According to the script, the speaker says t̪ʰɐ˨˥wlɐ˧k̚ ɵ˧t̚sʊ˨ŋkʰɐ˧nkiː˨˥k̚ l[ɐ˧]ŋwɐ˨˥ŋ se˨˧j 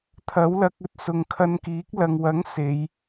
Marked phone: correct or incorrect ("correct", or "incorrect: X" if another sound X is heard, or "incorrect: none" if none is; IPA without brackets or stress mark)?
incorrect: ɐ˨